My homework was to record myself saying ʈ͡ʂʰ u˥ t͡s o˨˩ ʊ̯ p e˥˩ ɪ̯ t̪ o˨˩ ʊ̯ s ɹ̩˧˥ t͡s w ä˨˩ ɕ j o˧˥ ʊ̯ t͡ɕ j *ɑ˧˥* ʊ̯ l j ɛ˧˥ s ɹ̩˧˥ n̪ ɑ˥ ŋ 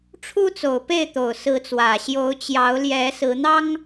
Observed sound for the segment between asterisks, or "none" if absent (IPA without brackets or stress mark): ɑ˧˥